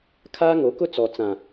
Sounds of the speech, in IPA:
kʰ aː˦ ŋ o˨˦ k ʊ˦ t͡s ɔ˨ t͡s ã˨

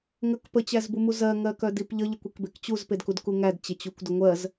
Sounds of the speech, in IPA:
ŋ ə k p ə t͡ɕ æ z b u m u z ɜ ŋ ɜ k œ d i p ʎ ə ʎ ə kʷ e k b e k t͡ɕ u z p e d k u d k u ŋ æ d t͡ɕ e t͡ɕ u kʷ d ə ŋʷ ɜ z

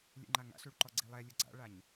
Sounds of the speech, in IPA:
lʲ ɛ̰ ŋ͡ǃ a ŋ a̰ ɬ u ɭ ǃ ɔ ɡ͡ǀ i lˠ ɛ lʲ ʊ ɡ͡ǀ a̰ ɭ a ɲ

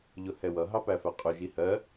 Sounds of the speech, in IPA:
ʎ ʊ h ɛ w ʌ ɦ ɑ p æ f æ qʼ ʊ ʒ i h ɜ

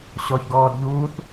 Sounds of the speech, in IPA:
ɕ ɔ ç ɡ ɔː d ʎ uː θ

